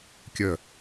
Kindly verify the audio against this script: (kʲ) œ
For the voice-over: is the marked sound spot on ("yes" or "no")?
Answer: yes